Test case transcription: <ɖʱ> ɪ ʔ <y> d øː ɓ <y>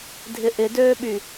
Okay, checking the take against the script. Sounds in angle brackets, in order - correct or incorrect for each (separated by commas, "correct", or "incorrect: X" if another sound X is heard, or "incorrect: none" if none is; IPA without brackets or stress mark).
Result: incorrect: dʱ, incorrect: ɪ, correct